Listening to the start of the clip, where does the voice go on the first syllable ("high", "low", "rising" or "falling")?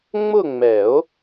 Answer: falling